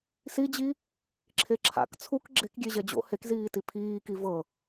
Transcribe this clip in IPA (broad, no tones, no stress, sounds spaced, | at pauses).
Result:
s i d͡ʑ i | ǁʰ e ǁʰ a̰ k t͡sʰ u k ɡ͡ǁ e k ɡʲ e ʑ ɛ d͡ʑ o̰ h e k z iː t i pʰ iː k i v ɤ